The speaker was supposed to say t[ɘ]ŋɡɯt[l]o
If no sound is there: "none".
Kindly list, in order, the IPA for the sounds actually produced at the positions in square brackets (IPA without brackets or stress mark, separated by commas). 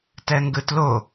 ɛ, l